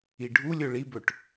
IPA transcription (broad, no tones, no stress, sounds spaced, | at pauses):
i ɖʱ u lʲ ɵ ɭ i b ɵ ʈ